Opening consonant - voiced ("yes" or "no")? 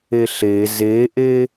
no